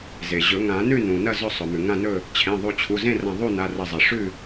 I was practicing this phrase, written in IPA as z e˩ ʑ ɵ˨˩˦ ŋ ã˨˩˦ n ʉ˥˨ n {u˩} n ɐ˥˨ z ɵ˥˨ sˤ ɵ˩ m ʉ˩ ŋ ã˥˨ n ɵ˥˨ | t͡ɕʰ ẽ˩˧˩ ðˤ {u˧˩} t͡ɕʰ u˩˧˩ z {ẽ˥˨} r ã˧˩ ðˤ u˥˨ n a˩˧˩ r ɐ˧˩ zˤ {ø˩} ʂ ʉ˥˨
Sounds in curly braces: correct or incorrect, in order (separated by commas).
incorrect, incorrect, correct, incorrect